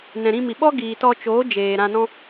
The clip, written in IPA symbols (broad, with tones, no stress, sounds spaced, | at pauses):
n ɛ̃˨ ɾ ĩ˧ m i˨ ɓ ɔ˦ ɡ iː˨ t ɔ˧ t͡ʃ oː˨˦ d͡ʒ eː˨ ɾ ã˧ n ɔ̃˦